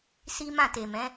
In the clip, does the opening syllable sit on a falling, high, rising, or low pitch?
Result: high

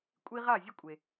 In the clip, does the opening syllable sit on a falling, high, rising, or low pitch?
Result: high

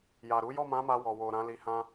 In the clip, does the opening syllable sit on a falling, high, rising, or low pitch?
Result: low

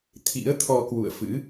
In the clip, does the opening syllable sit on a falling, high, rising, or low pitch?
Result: rising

